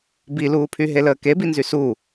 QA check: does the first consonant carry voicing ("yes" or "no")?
yes